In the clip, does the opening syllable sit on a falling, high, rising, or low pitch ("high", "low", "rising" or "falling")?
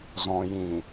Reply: low